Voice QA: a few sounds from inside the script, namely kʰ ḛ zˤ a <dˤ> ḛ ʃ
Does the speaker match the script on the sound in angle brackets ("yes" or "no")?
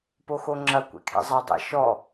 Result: yes